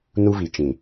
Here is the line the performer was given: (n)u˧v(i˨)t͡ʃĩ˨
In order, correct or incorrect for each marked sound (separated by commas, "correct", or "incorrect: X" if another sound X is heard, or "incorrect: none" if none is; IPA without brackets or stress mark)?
correct, correct